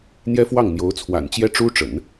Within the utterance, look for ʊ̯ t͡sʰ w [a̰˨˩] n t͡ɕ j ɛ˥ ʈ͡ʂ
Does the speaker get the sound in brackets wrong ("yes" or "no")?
no